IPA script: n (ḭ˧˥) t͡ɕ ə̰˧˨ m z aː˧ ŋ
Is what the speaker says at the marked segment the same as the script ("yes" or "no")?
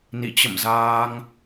no